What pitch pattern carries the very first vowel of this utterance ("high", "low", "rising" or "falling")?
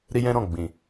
high